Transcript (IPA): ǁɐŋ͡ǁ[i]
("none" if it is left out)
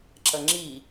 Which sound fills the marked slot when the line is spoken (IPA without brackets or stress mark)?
i